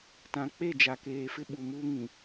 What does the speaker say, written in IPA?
t ã˨ k͡p e˦˨ d͡ʒ a˨ k eː˨ f ɪ˦ ɓ u˨ m uː˦ ŋ ĩ˨

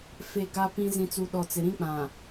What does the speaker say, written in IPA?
f e˨ ɡ a˦ p ĩ˦ z ĩ˨ t͡s u˨ ɗ ɔ˨ t͡s ɪ˨ ɾ ĩ˦ k͡p ã˨

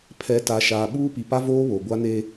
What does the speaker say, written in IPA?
pʰ ɛ˨ t a˨ ʃ aː˨ ɓ uː˦ p i˨ p a˦ v oː˦ β o˨ ɡʷ a˦ n e˦

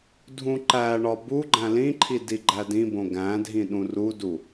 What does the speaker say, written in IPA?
dʱ ũ ǃ æ ɳ ɒ b u ɡ͡ǃ æ̃ l ĩ ǃʰ i d i ɡ͡ǃ æ d ĩ b õ ɡ æ̃ dʱ ĩ ɗ ũ r u d u

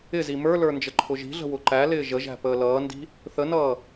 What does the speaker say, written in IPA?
ɪ z i m ə˞ l ə˞ n d͡ʒ ə ǃʰ ʊ ʒ i̤ ɮ ə̤ w ʊ ǃ æ l ɪː ʒ ə ʒ æ̤ p əː l ʌː n d i̤ | θ ə n ʌː

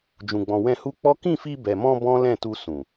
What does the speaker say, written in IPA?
d͡ʒ ũ˨ ɡ͡b ɔ̃˨ w ɛ̃˧ h u˦ k͡p ɔ˦ k ĩ˦˨ f i˧ b ɛ˨ m ɔ̃˧ b ɔ̃˦ l ɛ̃˦˨ t u˧ s ũ˨

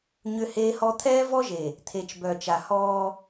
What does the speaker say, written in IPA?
ɲ ʏ˦ h eː˦ h ɔ˦ t̪ʰ ɛː˦ v ɔ˦ ʒ e˨ | t̪ʰ e˨ t͡ʃ b œ˨ t͡ʃ a˨ h ɔː˦

